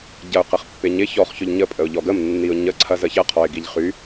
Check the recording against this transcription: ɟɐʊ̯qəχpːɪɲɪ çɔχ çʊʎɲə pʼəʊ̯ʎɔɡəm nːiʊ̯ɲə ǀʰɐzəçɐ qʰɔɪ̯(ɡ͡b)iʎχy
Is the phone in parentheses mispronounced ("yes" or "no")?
yes